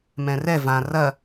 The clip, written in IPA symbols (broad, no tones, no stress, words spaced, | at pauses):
mɛ̃rɛ vã rɐ